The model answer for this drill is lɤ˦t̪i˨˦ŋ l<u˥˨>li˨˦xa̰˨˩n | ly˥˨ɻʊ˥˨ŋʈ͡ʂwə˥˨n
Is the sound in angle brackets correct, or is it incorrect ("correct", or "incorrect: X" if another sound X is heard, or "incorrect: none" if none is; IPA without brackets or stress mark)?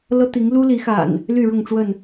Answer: incorrect: u˦